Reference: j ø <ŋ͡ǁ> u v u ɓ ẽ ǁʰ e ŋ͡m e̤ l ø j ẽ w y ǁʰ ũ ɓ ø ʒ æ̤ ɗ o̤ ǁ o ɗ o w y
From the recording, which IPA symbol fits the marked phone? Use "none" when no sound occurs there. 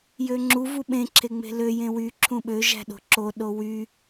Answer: ŋ͡ǁ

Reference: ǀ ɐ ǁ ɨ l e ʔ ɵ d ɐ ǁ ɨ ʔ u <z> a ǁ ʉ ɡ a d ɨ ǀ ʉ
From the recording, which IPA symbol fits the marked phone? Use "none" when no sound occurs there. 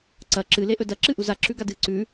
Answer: z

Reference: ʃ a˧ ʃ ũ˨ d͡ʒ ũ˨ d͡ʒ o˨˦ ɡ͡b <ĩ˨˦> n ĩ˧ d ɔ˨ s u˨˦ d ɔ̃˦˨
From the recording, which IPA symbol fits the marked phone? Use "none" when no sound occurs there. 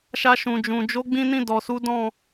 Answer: ĩ˧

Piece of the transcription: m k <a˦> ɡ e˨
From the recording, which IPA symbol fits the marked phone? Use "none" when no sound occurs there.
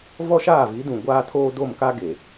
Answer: a˦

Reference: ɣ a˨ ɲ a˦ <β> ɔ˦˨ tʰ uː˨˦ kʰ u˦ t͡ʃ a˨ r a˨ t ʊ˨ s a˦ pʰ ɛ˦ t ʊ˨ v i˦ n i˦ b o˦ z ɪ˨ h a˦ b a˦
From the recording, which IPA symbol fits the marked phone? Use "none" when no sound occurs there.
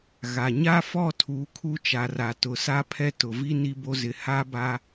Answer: f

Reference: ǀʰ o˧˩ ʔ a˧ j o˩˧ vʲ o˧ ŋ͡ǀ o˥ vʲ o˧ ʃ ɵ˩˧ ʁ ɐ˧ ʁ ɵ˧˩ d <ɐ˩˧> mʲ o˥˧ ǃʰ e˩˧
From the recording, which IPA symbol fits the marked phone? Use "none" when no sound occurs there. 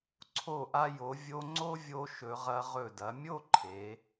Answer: ɐ˩˧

